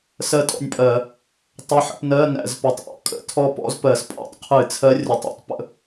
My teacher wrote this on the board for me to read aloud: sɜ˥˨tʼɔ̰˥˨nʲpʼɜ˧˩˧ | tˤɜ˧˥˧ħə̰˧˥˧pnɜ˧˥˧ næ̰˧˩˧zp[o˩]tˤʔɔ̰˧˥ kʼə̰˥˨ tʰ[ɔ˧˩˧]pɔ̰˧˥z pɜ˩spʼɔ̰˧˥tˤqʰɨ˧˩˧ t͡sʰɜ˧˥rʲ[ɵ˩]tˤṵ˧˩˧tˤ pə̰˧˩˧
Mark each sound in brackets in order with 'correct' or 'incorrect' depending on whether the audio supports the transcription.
incorrect, incorrect, incorrect

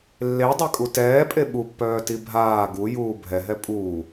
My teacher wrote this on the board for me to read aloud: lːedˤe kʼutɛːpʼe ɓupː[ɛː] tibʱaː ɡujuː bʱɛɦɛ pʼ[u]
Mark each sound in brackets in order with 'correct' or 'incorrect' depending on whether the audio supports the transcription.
incorrect, incorrect

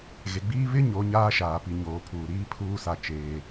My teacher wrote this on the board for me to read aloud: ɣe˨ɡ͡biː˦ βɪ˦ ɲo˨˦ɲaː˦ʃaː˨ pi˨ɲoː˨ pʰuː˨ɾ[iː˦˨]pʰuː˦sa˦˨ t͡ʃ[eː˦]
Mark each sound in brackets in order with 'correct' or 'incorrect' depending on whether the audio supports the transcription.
incorrect, correct

